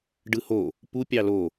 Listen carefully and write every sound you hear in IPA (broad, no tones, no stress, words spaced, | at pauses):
ɖɯho | pu pʲɑlo